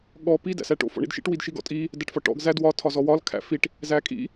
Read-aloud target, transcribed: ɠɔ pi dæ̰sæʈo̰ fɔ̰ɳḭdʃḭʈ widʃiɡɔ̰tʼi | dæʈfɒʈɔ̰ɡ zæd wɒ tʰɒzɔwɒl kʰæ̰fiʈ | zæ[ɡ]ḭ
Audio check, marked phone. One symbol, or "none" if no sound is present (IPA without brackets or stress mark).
kʼ